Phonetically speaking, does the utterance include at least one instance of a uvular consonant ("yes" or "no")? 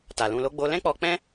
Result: no